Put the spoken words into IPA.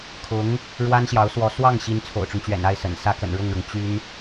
kʰ ʊ˧˥ ŋ | ɻ w a˥ n ɕ j ɑ˧˥ ʊ̯ s w ɔ˧˥ s w ɑ˥˩ ŋ ɕ i˧˥ n t͡sʰ o̰˨˩ ʊ̯ ʈ͡ʂ ʊ˦ ŋ t͡ɕ ɥ ɛ̰˨˩ n a˥˩ ɪ̯ s ə̰˨˩ n s ä˥ k ə̰˨˩ n ɻ ʊ˥˩ ŋ ɻ ʊ˩ ŋ t͡ɕ y˥ n

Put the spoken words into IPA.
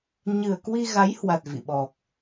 ɲ ɨ˨˩ ə̯ k w i˧ ɣ a˨˦ j h w a˨˩ t̚ v ḭ˧˨ ɓ ɔ˨˩ k̚

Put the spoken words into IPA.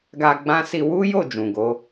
ɡ a˧ ɡ͡b ã˧ s i˧ w u˦ j o˦˨ d͡ʒ ũ˨ ɡ o˨˦

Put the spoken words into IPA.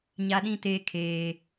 ɲ a˦ ɗ ĩ˦ t eː˦ kʰ eː˦

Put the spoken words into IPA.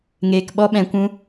ŋ eː˨ k ɓ ɔ˧ ɓ ɛ̃˨ kʷ ũ˧

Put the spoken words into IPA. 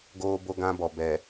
ɡ oː˦ b o˦ ɡ ã˦ b ɔ˨ b ɛ˨

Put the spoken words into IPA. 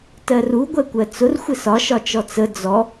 t ɜ r u ɡʷ ɛ kʷ ɜ t͡s ʊ r xʷ ɪ s ɒ ʃ ɒ t͡ʃ ɔ t͡s ə d͡z ɔ

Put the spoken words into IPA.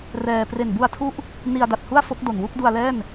r ɛː˧ p r e˨˩ n b u˧ a̯ tʰ u˦˥ ʔ | n i˧ a̯ d a˨˩ t̚ h u˥˩ a̯ f o˦˥ k̚ d o˨˩ n w u˥˩ k̚ d u˧ a̯ l ɛː˥˩ n

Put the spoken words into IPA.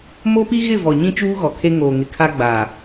m o˦ p i˦ ɣ ɪ˦˨ v ɔ˨ ɲ ĩ˦ t͡ʃ uː˦ ɣ ɔ˨ kʰ e˦ ŋ oː˨ ŋ ɪ˨ kʰ a˦ ɡ͡b a˨

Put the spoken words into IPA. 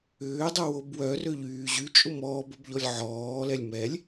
ʏː dˤ ʊ w o b w œ r ø ʎ yː ʑ y t͡ʃʼ ʊ m ɔː b ʊ b ʎ ɔ lʲ ʕ ɔː l ɛ lʲ m ɛ lʲ

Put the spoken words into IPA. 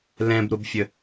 l ɛ̃ b ɾ ʊ b fʲ ə

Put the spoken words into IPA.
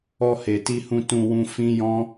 ɔ˧ h e˨ t i˧ h ũ˧ t ũ˧ w ũ˧ f ĩ˦ j ɔ̃˦

